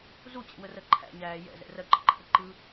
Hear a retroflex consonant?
no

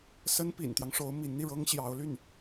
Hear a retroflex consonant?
yes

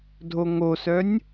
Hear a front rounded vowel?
yes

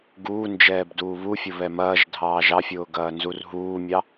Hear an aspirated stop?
no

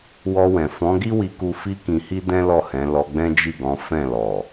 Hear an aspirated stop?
no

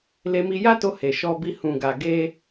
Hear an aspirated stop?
no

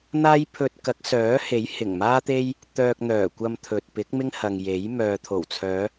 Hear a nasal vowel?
no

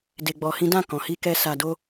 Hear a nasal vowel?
yes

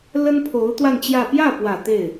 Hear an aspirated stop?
yes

